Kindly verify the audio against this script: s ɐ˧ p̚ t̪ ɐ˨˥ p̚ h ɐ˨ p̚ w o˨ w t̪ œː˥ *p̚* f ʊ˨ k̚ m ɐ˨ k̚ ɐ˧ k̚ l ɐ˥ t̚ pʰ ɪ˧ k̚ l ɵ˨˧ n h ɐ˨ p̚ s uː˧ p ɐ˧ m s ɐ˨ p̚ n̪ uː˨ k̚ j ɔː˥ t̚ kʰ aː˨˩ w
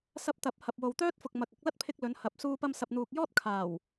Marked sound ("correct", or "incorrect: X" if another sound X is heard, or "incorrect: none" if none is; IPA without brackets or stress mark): incorrect: t̚